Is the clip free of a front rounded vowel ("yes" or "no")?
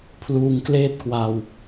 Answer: yes